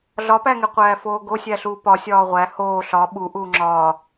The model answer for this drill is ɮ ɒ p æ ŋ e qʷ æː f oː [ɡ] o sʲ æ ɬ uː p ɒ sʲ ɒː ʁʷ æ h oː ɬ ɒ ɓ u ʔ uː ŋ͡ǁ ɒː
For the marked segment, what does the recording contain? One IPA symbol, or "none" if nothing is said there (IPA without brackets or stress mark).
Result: ɡ